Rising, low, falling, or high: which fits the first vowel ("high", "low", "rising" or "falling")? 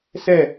falling